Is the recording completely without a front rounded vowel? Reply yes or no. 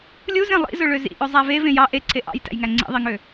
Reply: no